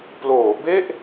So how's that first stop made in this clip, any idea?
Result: plain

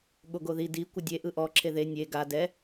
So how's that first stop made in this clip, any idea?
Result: implosive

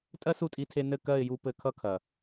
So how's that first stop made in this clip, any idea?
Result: ejective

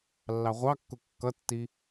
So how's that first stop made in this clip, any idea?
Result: plain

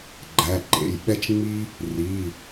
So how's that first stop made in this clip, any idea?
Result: click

